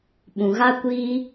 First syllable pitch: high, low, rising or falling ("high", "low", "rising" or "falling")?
low